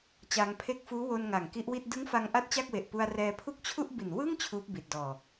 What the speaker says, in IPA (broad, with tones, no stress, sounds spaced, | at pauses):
t͡ɕ aː˧ ŋ pʰ e˦˥ k̚ f uː˦˥ w o˧ n ŋ a˨˩ ŋ k i˦˥ ʔ w i˥˩ t̚ d ɯ˦˥ ŋ f a˧ ŋ ʔ a˦˥ t̚ t͡ɕ a˥˩ k̚ w e˨˩ ʔ p u˧ a̯ r ɛː˧ pʰ u˥˩ k̚ t͡ɕʰ u˥˩ ʔ b i˨˩ n w ɯ˥˩ ŋ t͡ɕʰ uː˦˥ p̚ b i˨˩ t̚ d ɔː˨˩